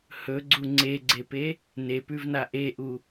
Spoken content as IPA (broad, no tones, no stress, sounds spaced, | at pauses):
h ɵ ɡ͡ǀ u ŋ͡ǀ e ɡ͡ǀ e p e | n e p ʉ v n a ʔ e ʔ u